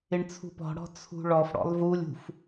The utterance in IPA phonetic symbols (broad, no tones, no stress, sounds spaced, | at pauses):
ɪ ɳ t͡sʰ ṳ p ɔ̤ ɽ ɔ̤ t͡sʰ ṳ ɭ ɔ f ɽ ɔ̰ lˠ v u lʲ ṳ f